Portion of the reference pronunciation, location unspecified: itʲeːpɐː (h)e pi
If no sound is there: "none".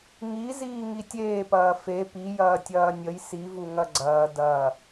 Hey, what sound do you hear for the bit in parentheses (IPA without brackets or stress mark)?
f